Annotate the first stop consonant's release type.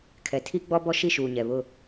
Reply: aspirated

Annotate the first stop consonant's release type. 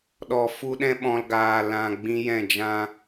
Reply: implosive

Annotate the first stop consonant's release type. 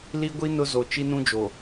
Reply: plain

